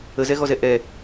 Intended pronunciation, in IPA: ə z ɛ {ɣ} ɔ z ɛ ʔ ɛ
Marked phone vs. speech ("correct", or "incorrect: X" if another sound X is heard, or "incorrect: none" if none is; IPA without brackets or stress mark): correct